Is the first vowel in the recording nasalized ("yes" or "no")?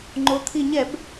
no